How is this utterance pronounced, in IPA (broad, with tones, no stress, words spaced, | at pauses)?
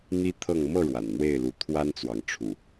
n̪i˦t̪ʰɤ˥˨ŋ mɤ˥˨ ɻwa̰˨˩nn̪we˥˨ɪ̯lu˨˦ t̪ʰwa˦nt͡swɑ˨ŋʈ͡ʂʰṵ˨˩